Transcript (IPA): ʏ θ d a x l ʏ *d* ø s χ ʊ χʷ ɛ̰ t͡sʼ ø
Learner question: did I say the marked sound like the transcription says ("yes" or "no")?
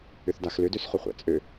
yes